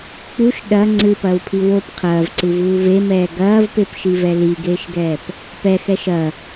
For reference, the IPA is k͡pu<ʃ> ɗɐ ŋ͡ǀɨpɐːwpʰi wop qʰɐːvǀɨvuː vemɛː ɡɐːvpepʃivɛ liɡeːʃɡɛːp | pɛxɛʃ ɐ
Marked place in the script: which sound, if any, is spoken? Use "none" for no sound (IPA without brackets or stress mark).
ʃ